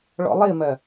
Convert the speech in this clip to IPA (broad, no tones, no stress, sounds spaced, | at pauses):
ɭ ɔ̰ lˠ i m ɜ